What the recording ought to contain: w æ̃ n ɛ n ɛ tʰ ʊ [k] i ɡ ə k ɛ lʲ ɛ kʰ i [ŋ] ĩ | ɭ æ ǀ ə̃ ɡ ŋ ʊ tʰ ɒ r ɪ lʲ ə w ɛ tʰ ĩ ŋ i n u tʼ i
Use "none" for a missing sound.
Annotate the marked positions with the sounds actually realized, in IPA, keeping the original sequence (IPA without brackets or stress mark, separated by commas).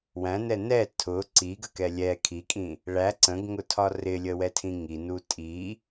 ǀ, kʼ